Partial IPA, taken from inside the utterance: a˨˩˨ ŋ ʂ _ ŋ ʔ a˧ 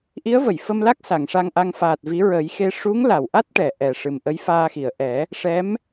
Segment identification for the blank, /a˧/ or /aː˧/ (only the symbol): a˧